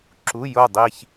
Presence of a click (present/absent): present